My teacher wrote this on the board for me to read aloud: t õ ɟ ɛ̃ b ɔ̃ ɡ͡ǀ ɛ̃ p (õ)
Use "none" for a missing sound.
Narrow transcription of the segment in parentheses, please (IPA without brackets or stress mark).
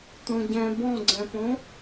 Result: õ